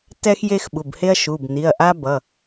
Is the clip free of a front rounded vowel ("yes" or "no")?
yes